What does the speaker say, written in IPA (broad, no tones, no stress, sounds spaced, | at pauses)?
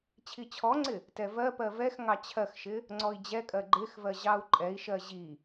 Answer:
t͡ɕʰ i t͡ɕʰ ɔ ŋ͡ǀ ɪ | t ɛ v ɜ p ɜ v ɛ x ŋ ɑ t͡ɕʰ ɜ x ʃ ɪ | ŋ͡ǀ ɔ i̯ d͡ʑ ɛ kʼ ɜ ɡ͡ǃ ɪ x v ɜ ʑ ɑ u̯ ǃʼ ɛ i̯ ʃ ɜ ʑ i